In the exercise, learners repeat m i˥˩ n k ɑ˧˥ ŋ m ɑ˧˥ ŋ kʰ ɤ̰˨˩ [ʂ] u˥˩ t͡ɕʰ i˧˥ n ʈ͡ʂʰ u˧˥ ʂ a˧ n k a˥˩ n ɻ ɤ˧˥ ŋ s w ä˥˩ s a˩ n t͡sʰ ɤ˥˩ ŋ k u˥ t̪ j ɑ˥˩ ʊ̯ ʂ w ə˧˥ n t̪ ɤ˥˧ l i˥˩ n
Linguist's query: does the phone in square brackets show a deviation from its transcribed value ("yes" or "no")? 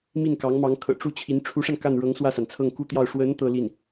yes